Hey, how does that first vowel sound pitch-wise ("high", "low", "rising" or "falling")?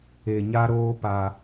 low